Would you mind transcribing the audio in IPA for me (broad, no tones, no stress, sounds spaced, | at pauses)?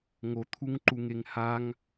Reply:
ŋ o t̪ʰ u ŋ ǃ u ŋ e ŋ h a ŋ